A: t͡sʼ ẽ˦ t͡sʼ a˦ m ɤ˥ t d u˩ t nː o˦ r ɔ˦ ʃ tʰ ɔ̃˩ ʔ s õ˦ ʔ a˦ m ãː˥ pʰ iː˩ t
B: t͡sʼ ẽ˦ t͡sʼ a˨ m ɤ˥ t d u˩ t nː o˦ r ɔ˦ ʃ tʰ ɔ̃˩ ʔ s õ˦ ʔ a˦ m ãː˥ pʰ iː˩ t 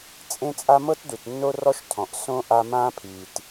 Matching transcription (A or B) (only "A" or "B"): A